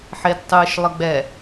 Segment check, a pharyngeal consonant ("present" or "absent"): present